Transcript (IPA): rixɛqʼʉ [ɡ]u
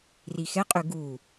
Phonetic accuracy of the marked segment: correct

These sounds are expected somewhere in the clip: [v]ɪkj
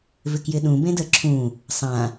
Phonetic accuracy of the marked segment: correct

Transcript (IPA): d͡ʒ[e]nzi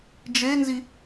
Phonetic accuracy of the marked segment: correct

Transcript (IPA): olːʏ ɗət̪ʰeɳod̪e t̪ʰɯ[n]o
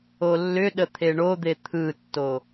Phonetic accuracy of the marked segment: incorrect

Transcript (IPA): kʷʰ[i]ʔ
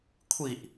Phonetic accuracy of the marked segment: correct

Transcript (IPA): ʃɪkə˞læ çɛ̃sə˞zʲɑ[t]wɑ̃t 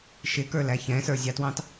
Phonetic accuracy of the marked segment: correct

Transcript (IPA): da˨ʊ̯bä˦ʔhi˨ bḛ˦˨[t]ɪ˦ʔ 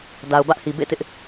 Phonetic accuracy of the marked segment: correct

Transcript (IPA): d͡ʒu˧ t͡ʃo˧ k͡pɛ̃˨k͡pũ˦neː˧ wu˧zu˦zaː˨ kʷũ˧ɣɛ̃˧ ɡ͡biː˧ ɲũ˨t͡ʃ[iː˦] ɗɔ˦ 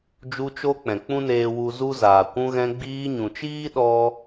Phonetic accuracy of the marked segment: correct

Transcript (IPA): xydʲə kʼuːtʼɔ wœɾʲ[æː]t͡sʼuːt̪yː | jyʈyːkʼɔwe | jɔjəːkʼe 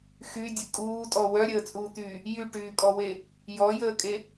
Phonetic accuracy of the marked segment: incorrect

